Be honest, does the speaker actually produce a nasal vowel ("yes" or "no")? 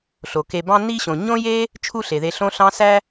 yes